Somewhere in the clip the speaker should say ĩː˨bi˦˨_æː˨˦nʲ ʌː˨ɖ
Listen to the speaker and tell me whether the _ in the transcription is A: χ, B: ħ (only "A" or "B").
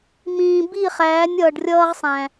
A